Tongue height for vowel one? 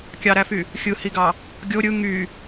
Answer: low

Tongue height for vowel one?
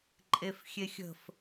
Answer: mid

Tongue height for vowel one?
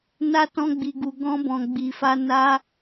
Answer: low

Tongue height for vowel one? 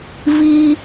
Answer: high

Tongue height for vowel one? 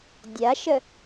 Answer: low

